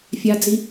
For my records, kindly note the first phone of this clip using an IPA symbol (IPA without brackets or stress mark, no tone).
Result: fʲ